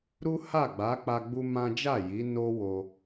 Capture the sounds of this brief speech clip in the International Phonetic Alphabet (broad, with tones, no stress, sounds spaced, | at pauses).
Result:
ɾ u˦ h a˦˨ ɡ͡b a˨˦ k͡p a˧ ɡ͡b u˦ m ã˦ d͡ʒ a˦˨ j i˨˦ n o˦ w o˧